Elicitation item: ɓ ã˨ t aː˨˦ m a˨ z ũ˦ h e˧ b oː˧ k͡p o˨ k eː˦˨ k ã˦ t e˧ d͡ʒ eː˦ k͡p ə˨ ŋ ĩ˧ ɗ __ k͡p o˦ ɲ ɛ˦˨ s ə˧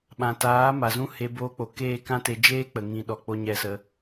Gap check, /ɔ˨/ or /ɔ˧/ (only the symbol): ɔ˨